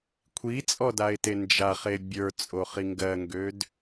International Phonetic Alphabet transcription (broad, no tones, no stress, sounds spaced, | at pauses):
kʷʰ i t͡sʼ ɔ d a ɪ̯ t e n d͡ʒ a χ e bʲ ə˞ t͡sʼ o χ i ŋ ɡ ɜ ŋ ɡ ø d